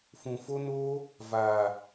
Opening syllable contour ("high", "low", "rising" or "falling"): low